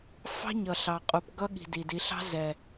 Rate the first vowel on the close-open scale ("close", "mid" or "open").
open